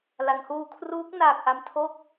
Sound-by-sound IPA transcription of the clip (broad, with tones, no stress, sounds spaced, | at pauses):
l a˩˦ ŋ h uː˧ kʰ r uː˦˥ k̚ n aː˨˩ k̚ ʔ a˧ m tʰ o˥˩ k̚